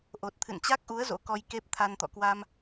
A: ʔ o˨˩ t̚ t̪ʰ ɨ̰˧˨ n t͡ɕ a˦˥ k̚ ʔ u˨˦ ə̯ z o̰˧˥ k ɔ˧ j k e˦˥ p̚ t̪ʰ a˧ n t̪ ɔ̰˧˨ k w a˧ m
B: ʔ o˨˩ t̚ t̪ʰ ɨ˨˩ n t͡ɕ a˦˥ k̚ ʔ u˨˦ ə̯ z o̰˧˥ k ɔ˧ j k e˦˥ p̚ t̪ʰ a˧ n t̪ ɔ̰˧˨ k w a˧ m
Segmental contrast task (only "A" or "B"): A